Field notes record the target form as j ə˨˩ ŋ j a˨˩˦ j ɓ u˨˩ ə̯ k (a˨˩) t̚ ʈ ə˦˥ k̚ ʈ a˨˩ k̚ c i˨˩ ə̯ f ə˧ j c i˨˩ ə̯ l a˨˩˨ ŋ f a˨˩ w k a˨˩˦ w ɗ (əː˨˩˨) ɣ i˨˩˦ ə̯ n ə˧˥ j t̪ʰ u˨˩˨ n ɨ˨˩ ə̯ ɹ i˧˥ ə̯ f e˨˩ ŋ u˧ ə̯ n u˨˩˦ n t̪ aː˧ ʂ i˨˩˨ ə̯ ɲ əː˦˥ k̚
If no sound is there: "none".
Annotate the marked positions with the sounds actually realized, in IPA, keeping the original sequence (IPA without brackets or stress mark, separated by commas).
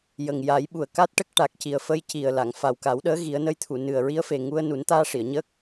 a˦˥, əː˧˥